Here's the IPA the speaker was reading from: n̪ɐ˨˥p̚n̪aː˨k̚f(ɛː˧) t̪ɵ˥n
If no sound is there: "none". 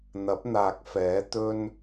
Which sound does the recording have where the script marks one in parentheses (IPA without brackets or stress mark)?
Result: ɛː˨˥